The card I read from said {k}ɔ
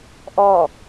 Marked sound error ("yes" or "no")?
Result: yes